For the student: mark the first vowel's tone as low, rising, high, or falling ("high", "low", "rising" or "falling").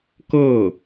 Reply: falling